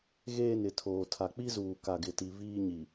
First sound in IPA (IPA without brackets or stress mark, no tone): ɣ